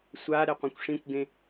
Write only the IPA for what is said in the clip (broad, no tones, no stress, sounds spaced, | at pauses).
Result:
sʷ a ɾ ɛ qʷ ẽ kʷ ʂ ĩ kʷ ɡ ẽ